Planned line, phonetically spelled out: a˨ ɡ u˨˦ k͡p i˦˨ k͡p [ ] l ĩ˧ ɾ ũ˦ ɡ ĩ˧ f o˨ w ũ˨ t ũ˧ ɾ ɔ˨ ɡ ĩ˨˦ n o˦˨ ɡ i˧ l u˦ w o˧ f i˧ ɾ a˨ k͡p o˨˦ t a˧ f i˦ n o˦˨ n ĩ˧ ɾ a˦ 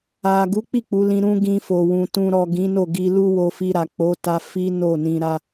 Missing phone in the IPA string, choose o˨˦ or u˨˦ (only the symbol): u˨˦